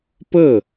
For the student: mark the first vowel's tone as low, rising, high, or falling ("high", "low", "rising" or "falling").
falling